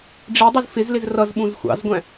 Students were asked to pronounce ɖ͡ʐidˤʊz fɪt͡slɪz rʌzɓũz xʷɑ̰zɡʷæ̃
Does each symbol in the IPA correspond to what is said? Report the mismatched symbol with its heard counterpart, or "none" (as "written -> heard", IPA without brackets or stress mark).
t͡s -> z